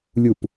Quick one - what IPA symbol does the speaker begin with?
lʲ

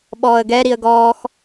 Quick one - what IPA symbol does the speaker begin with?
ɓ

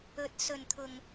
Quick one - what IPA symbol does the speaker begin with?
ɵ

